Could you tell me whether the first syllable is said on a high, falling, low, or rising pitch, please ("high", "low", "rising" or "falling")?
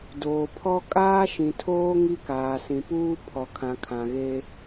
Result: low